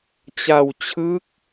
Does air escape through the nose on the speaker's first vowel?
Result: no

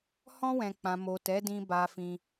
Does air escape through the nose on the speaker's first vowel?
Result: yes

